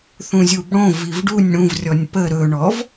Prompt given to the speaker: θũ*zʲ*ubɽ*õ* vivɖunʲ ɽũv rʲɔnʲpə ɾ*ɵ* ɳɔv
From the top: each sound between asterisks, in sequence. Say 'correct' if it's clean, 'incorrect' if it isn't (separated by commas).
correct, correct, correct